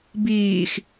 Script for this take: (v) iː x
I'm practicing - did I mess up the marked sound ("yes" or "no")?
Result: yes